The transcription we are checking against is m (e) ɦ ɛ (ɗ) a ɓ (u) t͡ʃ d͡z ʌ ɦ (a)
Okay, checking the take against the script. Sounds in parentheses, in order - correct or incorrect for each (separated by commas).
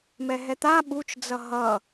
incorrect, incorrect, correct, incorrect